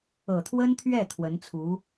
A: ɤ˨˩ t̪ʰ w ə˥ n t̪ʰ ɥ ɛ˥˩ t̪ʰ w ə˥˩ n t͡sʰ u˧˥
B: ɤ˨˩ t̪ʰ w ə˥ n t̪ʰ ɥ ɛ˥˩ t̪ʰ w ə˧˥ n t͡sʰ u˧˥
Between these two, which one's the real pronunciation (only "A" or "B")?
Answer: B